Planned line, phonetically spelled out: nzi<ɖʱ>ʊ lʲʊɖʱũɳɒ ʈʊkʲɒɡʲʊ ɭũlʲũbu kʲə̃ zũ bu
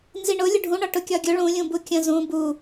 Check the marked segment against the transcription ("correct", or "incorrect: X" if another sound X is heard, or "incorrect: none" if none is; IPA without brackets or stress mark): incorrect: ɳ